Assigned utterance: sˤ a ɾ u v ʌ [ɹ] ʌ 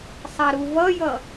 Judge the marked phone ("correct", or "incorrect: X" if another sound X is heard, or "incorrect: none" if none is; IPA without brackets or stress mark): incorrect: j